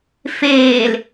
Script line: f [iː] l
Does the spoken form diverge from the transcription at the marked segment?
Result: yes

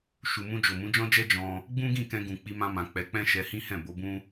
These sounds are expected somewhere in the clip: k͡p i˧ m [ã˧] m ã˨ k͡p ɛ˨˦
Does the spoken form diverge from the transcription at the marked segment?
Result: no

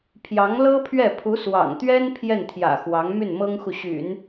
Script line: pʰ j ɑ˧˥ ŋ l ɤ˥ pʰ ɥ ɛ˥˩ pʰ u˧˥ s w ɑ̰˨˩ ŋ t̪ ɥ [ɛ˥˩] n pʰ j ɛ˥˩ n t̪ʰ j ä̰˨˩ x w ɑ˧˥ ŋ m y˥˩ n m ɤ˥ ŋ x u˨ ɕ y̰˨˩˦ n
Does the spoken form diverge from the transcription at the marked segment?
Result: yes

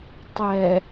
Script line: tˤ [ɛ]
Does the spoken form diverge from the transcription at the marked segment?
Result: no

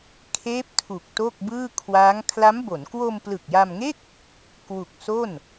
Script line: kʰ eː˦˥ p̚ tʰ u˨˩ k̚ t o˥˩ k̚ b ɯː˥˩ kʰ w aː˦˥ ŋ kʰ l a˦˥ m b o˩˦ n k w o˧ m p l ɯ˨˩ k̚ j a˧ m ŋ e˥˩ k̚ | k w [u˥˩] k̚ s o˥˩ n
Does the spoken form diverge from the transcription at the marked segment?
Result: yes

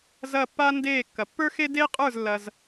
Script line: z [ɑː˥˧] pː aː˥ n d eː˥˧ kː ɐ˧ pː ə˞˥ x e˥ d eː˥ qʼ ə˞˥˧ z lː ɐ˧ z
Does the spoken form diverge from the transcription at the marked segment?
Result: yes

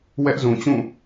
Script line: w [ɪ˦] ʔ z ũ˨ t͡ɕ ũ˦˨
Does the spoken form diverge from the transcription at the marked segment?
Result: yes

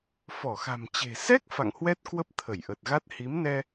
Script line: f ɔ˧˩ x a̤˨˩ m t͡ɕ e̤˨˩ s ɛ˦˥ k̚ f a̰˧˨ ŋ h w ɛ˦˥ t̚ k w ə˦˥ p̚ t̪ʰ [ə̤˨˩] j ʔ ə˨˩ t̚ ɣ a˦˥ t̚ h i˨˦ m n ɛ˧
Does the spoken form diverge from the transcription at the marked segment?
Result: yes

